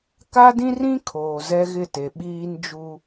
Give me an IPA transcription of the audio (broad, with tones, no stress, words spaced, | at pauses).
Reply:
ka˦dĩ˦rĩ˦ kʰoː˨zɛ˦ɣɪ˦˨te˨ ɓiː˦nd͡ʒu˦